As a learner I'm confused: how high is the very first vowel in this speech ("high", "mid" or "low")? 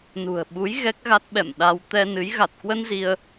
high